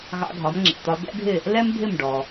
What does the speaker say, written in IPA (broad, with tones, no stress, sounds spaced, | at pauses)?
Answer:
ɣ ɑ̰˧ ɡʱ ɒ˩˥ m ŋ͡ǁ ɛ̰˩ t̪ ɒ˧ d̪ ɛ̰˥ ɡʱ ɪ˥˩ | l ɛ˥ m bʱ ɪ˥˩ m ɖ ɔ˩